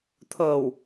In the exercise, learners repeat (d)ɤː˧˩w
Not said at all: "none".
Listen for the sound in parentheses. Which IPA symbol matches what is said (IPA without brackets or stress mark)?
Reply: t̪ʰ